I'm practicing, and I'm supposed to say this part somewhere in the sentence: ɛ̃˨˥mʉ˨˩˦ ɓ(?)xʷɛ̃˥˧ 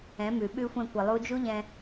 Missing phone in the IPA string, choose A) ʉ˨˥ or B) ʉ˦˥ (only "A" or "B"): B